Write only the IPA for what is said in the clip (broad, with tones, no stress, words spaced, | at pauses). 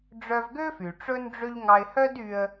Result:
ɖ͡ʐœ˧vɡø˥fy˩ ʈ͡ʂɵ˥nɖ͡ʐø˥ʎ ŋɑ˧ɪ̯hœ˥dy˧ə̯